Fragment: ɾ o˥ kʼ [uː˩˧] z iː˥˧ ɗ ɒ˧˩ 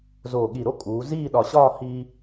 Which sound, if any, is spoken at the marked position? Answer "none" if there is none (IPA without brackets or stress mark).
uː˩˧